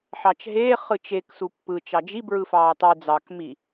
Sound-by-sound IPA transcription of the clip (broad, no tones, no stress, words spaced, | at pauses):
ħɑt͡ʃɦeː χɯt͡ʃek supːɯ t͡ʃɑd͡ʒi bɹɯfɑːtˤy d͡zɑk mi